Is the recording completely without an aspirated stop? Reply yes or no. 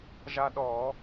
yes